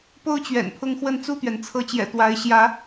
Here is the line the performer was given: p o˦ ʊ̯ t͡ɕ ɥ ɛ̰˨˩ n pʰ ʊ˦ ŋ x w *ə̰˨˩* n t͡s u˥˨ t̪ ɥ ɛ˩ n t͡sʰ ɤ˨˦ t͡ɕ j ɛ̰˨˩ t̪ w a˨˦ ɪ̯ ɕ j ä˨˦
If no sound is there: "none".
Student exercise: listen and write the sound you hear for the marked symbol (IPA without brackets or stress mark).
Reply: ə˥˨